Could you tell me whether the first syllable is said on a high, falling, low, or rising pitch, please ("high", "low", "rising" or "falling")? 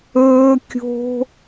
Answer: high